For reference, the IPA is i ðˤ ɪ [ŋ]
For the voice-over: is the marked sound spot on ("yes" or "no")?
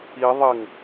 yes